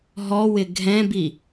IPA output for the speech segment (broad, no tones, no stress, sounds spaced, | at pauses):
ɦ ɔ w ɪ ɡʱ ɛ̃ b i